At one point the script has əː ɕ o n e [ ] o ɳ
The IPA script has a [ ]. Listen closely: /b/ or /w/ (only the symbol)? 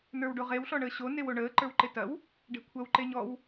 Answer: w